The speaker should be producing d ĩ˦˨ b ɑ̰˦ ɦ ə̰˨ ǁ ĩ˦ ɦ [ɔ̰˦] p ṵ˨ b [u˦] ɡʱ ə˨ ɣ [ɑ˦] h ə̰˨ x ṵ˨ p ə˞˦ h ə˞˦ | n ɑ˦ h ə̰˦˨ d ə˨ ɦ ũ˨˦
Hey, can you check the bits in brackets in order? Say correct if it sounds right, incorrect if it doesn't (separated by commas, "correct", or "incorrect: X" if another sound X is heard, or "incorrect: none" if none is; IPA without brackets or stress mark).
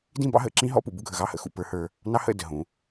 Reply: correct, correct, correct